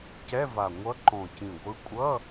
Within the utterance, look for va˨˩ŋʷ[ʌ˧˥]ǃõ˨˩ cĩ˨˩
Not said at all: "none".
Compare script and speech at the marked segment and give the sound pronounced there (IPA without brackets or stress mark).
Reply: ʌ˧˥